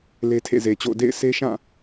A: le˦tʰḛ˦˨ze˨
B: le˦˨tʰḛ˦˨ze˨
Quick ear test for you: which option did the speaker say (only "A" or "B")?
A